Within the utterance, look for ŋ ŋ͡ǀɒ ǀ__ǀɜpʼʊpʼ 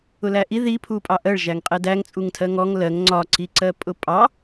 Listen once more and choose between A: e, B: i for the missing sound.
B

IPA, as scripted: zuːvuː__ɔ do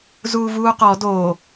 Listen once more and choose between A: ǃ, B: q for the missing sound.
B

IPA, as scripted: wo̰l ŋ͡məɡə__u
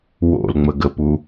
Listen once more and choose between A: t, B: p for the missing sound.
B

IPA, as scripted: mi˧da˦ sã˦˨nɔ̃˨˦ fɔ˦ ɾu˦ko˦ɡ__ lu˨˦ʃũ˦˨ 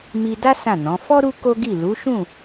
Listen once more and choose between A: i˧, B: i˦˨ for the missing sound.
B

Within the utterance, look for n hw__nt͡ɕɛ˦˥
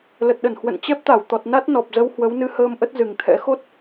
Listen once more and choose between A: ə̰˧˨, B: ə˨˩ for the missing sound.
A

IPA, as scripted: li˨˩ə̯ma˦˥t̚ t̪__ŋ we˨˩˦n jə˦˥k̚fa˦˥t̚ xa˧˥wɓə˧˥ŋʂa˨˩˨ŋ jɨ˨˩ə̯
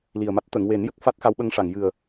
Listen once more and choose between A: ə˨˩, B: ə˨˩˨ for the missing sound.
B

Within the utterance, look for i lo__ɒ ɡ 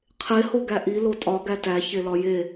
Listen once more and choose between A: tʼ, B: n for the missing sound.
A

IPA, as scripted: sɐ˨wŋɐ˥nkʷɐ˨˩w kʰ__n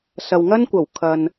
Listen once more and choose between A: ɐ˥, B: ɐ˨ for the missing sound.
B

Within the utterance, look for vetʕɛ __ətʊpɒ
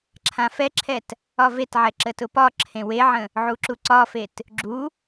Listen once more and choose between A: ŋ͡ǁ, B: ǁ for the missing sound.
B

